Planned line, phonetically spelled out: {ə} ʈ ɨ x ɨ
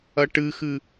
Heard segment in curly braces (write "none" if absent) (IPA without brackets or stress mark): ɐ